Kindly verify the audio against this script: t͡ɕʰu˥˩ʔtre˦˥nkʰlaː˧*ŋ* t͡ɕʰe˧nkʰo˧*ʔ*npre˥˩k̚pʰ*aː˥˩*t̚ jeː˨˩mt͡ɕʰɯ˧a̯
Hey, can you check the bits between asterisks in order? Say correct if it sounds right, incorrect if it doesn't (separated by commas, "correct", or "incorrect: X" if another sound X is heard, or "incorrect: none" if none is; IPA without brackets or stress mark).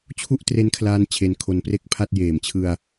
incorrect: n, incorrect: none, incorrect: a˥˩